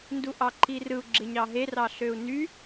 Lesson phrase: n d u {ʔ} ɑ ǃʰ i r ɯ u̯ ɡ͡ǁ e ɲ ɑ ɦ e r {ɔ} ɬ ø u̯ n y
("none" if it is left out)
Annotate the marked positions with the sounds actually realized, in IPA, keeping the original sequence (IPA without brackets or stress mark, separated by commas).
ʔ, ɑ